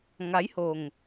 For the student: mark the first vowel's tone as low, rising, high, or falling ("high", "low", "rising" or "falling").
rising